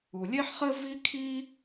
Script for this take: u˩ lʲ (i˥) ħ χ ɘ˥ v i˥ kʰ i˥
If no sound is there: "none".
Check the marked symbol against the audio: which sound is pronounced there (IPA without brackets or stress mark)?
e˥